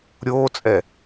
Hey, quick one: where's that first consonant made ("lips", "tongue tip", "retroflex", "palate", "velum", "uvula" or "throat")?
tongue tip